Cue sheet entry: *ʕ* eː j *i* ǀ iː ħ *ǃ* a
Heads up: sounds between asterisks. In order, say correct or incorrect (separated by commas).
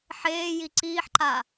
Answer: incorrect, correct, correct